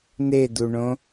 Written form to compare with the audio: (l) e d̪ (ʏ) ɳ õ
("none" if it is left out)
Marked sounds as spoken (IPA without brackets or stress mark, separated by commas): n̪, u